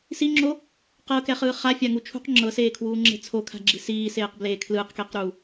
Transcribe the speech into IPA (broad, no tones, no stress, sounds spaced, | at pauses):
s i ŋ͡ǁ o | q ɤ k ɛ χ ɯː χ a fʲ a ŋ u t͡ʃʰ ṳ q ŋ͡ǁ ɤ s eː kʰ w uː ŋ͡ǁ e̤ t͡sʰ o kʰ a̤ ɡ͡ǁ i̤ s iː s eː q b l eː kʰ l ɯː q k eː q ɾ uː